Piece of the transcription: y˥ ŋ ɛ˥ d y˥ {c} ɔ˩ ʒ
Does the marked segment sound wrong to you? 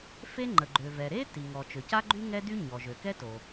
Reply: yes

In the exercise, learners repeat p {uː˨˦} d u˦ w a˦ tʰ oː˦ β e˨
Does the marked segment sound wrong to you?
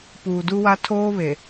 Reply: yes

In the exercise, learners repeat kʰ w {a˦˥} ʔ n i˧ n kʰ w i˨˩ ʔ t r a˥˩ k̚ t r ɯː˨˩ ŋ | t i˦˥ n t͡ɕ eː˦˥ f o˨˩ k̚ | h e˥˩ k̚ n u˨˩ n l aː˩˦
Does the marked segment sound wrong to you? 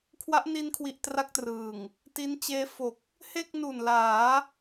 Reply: no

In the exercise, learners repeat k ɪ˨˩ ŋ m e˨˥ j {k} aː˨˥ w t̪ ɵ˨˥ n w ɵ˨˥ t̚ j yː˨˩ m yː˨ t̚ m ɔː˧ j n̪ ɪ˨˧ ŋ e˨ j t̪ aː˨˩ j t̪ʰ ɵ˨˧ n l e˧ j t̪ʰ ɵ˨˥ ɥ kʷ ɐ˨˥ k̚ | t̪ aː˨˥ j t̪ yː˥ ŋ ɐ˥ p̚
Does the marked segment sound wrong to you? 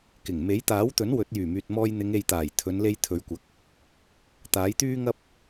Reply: yes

